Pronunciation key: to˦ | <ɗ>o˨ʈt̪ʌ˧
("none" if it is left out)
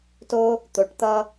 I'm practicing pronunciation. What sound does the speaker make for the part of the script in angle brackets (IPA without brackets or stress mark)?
t̪